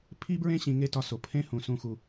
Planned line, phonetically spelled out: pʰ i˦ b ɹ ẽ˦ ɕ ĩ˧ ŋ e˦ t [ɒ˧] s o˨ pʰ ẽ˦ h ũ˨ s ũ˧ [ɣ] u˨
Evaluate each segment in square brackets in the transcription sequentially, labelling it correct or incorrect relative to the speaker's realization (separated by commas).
correct, incorrect